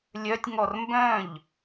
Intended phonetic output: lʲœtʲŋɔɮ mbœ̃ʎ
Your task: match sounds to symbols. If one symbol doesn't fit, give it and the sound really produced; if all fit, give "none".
ɮ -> r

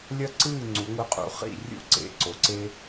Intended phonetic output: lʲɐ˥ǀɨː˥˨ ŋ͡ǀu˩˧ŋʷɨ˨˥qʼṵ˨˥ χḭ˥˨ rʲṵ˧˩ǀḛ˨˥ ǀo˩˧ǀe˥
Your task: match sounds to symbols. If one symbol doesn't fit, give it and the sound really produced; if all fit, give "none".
none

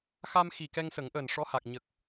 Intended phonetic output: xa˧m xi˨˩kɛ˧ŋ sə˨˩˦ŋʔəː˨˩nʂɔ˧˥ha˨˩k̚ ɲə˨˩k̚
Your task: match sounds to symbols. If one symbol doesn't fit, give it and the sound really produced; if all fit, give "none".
none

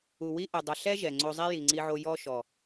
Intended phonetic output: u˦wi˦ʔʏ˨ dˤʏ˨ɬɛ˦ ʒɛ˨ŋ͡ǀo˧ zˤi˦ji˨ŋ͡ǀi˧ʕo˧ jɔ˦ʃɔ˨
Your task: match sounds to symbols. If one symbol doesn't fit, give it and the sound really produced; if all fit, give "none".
u˦ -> u˨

